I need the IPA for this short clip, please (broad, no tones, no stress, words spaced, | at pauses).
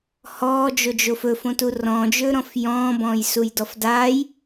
hɔːd͡ʒod͡ʒof ɵfõtu rɔ̃d͡ʒɵːɾɔ̃f jɔ̃ːbɔ̃ːjsujdɔf daːj